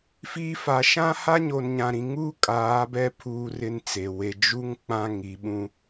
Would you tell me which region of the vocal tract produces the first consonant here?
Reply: lips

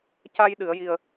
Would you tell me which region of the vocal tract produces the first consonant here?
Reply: palate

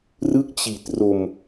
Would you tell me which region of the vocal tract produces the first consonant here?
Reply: tongue tip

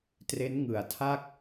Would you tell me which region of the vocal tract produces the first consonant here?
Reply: tongue tip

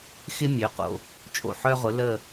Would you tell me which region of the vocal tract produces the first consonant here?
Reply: velum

